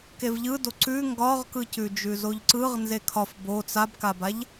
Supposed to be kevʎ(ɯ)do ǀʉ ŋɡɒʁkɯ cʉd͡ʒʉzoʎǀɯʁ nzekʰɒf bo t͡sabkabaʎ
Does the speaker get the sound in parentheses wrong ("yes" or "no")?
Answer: no